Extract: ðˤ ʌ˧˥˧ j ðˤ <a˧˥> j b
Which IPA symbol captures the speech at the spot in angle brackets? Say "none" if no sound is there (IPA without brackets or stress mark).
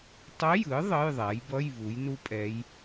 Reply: a˩˥